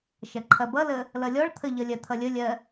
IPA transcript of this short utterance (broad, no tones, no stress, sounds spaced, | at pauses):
ʃ ɐ ǃʰ ɐ b ʌ l ə | l ʌ lʲ ɔ ɭ t̪ʰ ə ʎ ʌ lʲ ɜ t̪ʰ ʌ lʲ ə lʲ ɜ